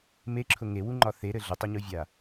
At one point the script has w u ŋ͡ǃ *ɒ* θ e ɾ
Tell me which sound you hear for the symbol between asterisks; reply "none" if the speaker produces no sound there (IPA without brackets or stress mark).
ɒ